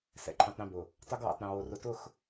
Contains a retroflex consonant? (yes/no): no